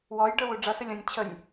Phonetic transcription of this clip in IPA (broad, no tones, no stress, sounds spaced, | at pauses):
w ɔ j ɖ ə˞ w u ɖ͡ʐ ʌ s ə lʲ ɔ̃ nʲ t͡ɕʰ ə nʲ